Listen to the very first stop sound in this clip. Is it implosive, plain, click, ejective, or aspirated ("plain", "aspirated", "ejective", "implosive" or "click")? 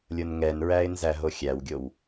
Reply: plain